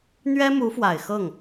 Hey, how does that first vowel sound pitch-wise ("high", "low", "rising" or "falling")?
high